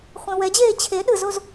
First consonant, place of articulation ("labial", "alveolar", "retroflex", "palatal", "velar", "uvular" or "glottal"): uvular